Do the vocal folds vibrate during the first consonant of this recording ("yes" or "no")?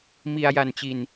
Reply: yes